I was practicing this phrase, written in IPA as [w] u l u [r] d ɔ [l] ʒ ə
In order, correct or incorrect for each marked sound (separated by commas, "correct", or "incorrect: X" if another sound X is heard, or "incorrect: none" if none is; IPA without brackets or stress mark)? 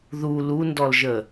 incorrect: ð, incorrect: n, correct